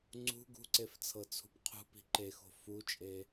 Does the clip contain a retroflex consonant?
no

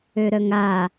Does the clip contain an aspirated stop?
no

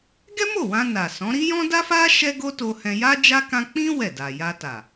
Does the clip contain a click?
no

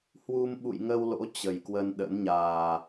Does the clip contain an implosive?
yes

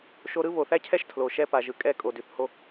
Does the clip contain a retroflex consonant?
no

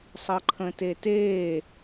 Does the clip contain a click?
yes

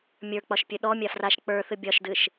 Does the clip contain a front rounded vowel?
no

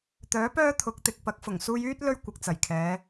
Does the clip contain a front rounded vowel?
yes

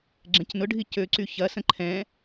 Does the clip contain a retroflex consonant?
yes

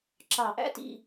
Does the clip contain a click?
yes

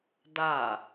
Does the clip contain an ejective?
no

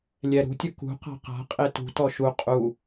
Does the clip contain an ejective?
yes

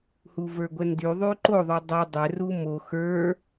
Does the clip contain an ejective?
no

